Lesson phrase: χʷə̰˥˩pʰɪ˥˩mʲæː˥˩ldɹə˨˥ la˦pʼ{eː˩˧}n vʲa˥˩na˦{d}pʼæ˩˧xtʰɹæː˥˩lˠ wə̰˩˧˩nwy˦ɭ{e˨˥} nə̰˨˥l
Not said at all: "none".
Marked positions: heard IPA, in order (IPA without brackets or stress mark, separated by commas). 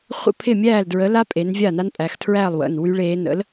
e˩˧, n, eː˨˥